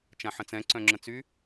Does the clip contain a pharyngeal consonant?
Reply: yes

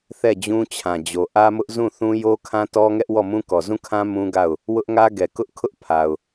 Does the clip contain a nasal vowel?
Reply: yes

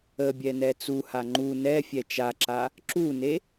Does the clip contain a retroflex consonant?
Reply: no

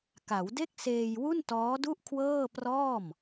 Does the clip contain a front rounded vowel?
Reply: no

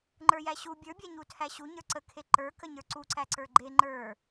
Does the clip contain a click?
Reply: yes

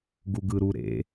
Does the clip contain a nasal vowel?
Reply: no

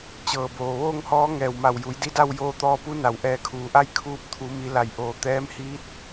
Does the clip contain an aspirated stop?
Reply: yes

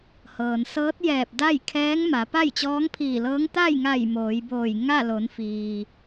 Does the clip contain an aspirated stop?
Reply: yes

